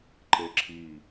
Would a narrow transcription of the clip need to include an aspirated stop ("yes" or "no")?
yes